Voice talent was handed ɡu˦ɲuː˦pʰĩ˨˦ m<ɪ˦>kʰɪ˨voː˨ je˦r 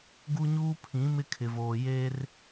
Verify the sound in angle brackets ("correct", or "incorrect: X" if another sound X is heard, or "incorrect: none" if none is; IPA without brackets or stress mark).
correct